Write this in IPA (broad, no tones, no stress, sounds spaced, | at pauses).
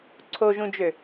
ǀʰ o ʒ ũ d͡ʒ ø